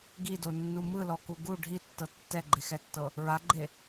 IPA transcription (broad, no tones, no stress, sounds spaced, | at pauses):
ɡ i d o nː u m ɯ l ɔ k u ɡ u ɖʱ i tː ɤ tː ɛ ɡ͡ǃ e x ɛ tː ɤ | ɹ a ɡ͡ǃ e